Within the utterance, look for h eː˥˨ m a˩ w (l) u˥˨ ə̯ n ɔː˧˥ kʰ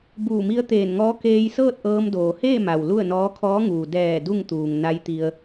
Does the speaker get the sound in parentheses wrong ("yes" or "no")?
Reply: no